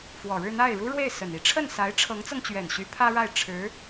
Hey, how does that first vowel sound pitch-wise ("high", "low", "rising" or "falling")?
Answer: low